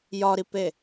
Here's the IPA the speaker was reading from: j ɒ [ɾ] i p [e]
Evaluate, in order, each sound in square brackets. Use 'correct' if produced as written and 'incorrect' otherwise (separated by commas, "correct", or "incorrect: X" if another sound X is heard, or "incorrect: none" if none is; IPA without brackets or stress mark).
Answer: correct, correct